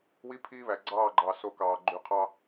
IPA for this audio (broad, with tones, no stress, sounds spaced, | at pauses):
w i˦ pʰ iː˦ β æ˨ ɡ͡ǀ ɑː˦˨ ɡ͡ǃ ɑ˨ s o˦ k ɑː˨ ɡ͡ǃ y˨ qʰ ɑ˦